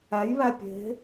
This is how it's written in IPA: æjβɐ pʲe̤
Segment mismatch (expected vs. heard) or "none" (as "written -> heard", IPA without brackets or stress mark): ɐ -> æ